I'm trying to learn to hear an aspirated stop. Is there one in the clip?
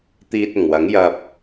no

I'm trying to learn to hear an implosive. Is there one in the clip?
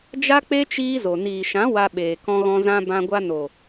yes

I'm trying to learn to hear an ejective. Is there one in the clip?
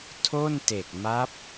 no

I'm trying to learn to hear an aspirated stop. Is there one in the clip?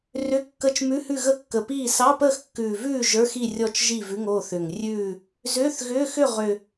no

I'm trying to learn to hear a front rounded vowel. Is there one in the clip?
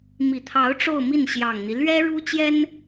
no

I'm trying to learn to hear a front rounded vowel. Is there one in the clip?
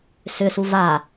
yes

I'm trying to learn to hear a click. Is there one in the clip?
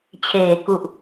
no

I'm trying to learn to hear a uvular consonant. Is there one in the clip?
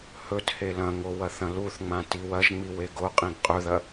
yes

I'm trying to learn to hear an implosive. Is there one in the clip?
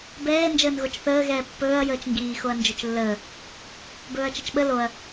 yes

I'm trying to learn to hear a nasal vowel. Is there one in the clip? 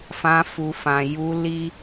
yes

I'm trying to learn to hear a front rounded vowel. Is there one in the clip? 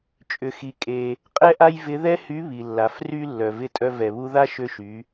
yes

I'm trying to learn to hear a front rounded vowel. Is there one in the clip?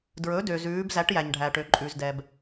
yes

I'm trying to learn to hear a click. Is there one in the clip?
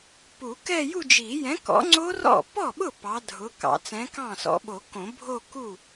yes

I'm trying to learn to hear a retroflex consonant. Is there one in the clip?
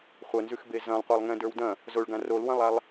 yes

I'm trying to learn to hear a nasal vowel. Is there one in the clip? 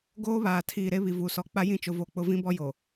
yes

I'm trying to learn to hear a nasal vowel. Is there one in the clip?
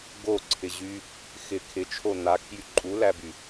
no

